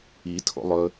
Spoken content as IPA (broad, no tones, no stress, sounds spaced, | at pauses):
i tʰ o̰ lˠ ɵ